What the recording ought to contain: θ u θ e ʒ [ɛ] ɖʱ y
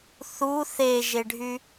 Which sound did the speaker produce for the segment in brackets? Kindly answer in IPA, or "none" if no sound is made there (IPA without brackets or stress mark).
e